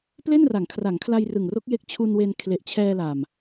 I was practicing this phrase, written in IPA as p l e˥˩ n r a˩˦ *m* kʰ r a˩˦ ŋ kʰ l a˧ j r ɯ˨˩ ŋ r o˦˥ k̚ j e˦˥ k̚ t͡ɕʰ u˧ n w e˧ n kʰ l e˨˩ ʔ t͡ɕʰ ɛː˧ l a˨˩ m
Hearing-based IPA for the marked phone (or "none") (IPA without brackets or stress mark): ŋ